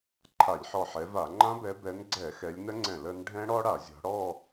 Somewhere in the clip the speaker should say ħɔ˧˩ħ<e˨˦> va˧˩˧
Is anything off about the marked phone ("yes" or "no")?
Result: yes